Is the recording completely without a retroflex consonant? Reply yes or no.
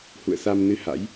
yes